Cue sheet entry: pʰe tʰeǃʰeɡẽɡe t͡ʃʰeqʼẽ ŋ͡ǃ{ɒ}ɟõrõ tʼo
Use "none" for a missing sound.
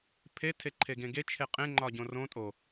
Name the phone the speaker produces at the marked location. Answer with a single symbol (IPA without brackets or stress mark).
ɒ